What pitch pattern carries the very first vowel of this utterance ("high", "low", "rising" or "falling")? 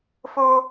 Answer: high